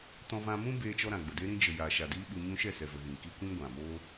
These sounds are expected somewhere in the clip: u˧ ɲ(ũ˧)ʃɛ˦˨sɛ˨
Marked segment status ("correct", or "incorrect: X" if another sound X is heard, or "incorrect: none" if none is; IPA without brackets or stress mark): correct